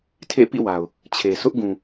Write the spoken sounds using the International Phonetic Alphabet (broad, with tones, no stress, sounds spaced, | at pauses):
tʰ ḛ˦˨ p ḭ˦˨ w a˨ ʊ̯ | t͡ɕʰ e˨ sʰ ʊ˦ ʔ ɡ ũ˨